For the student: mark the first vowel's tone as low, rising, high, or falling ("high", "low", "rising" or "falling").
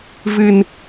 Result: low